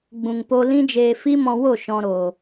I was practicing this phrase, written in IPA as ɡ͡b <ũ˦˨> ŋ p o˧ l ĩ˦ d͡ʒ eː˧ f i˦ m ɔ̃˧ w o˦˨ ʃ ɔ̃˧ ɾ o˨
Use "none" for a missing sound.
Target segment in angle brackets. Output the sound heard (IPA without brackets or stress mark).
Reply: ũ˨